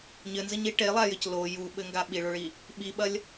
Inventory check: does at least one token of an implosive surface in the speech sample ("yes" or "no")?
yes